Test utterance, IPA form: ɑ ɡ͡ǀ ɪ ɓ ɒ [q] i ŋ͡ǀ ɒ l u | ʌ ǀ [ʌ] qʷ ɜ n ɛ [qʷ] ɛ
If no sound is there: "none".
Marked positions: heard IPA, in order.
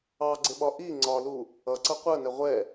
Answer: ʔ, ʌ, ʁʷ

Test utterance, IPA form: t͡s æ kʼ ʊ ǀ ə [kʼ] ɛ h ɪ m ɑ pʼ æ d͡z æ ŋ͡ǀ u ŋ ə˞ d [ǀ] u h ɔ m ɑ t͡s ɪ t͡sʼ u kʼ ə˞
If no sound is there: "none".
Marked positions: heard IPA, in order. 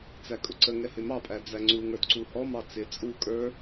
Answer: ŋ, ǀ

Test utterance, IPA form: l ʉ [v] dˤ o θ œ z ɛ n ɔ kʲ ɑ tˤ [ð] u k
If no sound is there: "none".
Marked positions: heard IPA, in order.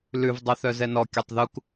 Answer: v, ð

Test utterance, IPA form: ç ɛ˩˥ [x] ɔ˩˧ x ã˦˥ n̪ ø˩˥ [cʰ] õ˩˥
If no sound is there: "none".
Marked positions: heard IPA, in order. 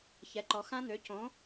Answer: ǃ, c

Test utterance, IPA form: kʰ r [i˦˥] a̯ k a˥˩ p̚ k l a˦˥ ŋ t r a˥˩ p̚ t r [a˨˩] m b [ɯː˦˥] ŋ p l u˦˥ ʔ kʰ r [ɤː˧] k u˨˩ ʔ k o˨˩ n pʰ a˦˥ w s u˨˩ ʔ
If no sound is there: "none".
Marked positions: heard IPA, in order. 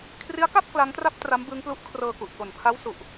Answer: i˦˥, a˦˥, ɯː˦˥, ɤː˧

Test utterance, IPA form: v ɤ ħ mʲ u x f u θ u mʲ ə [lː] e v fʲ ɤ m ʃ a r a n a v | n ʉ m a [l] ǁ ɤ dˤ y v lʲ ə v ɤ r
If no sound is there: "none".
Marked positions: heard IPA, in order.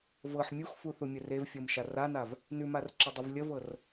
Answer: r, r

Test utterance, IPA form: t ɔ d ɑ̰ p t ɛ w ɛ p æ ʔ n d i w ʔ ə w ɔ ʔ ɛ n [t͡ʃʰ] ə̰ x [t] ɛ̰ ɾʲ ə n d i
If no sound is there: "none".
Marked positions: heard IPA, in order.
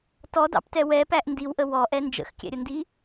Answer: d͡ʒ, kʲ

